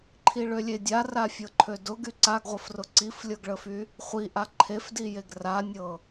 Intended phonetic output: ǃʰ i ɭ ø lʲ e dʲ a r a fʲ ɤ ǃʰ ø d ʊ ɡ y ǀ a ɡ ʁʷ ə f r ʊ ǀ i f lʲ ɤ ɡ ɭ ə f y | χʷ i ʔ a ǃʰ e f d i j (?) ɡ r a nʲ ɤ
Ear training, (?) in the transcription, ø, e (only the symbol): e